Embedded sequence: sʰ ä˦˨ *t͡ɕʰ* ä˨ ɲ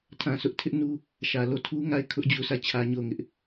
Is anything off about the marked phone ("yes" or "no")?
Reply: no